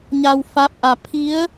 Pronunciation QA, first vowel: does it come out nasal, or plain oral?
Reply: oral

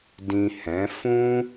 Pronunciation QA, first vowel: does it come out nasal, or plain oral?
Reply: nasal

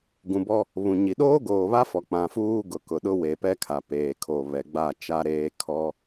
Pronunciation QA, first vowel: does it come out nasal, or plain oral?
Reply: nasal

